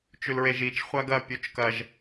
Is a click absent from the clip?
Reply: yes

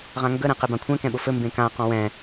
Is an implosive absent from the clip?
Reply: no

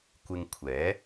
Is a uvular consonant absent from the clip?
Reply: yes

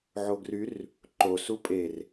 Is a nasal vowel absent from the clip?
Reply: yes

